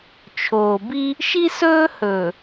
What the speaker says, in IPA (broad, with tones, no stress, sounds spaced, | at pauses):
t͡ʃʰ oː˨ b i˦ | ʃ i˦ s ɵː˦ h ɵː˨